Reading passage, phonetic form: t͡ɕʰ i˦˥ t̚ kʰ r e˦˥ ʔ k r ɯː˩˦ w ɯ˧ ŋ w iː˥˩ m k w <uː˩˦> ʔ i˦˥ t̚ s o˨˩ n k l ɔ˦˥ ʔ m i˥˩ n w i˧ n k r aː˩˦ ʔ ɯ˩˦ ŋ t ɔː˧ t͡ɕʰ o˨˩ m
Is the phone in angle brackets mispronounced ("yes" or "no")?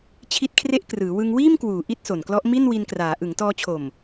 no